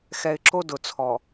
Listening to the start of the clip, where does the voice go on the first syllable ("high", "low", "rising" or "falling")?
low